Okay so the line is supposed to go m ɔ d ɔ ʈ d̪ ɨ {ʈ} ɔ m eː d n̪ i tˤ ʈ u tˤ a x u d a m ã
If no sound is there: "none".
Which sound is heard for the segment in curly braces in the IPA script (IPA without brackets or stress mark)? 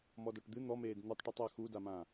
n̪